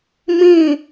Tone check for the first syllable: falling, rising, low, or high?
falling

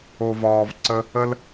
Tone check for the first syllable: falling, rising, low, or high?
low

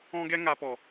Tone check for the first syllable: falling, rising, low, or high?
high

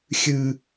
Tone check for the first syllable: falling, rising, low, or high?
low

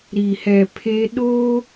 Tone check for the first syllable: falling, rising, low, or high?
low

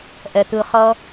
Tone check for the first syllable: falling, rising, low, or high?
low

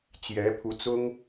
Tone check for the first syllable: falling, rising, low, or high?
rising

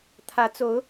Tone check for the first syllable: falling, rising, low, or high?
rising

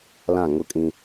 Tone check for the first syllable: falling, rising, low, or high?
falling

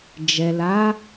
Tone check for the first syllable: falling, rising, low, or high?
low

